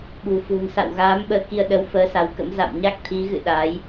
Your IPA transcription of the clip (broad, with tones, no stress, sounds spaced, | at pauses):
ɓ ṳ˨˩ f ṳ˨˩ n s a̰˧˨ w ɣ aː˨˦ m ɓ əː˨˦ k i˧ ə̯ ɗ ə˨˦ w f əː˨˦ s a˨˦ w k ə̰˧˥ m z a̰˧˨ m ɲ a˦˥ k̚ t̪ʰ i˨˦ ɣ ɨ̰˧˨ ɗ aː˨˦ j